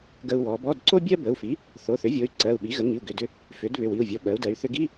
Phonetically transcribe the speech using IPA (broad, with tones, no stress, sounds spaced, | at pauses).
ɡ ə˧ u̯ w ɔ˩˧ b ɔ˧˥˧ d ǀ o˥ bʲ ɜ˥ b ə˩˧˩ u̯ f i˩˥ | θ o˩˧˩ θ ʏ˩˥ vʲ o˩˧˩ y̯ ǀ ɜ˩˧˩ u̯ ɓ i˩˥ ɣ ə˩˥ ŋ i˩˧˩ u̯ ɡ ʏ˩˧˩ d ʏ˧ | f ʏ˩˥ d β ʏ˩˧˩ w i˩˧˩ u̯ vʲ ɔ˩˧˩ ɓ ɜ˩˧ u̯ d ɜ˩˧ y̯ θ ʏ˧ ɡ i˧˥˧